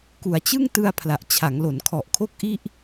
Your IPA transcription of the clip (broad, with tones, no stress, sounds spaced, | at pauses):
k u˩˦ a̯ t͡ɕ ɯ˥˩ ŋ t ɯ˧ a̯ pʰ l a˨˩ ʔ t͡ɕʰ a˩˦ ŋ l o˩˦ n kʰ ɔ˨˩ ʔ kʰ o˥˩ k̚ ʔ i˥˩ ʔ